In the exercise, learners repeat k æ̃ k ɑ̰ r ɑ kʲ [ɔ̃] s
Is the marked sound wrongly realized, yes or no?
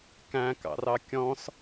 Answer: no